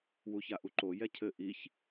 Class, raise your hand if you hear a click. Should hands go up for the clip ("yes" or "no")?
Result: yes